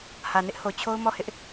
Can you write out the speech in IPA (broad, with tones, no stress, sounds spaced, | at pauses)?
h ä˨ n ɪ˦ ʔ h o˨ t͡ɕʰ o˦ ʊ̯ m ɔ˦˨ h ɪ˦ ʔ